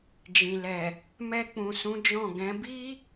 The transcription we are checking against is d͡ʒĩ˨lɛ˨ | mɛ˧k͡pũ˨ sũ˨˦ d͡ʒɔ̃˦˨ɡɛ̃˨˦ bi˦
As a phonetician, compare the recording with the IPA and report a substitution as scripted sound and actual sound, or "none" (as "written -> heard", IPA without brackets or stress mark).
none